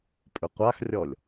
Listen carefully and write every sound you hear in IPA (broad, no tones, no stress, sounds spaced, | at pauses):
pʼ ʏ qʷ a x rʲ ɔ lʲ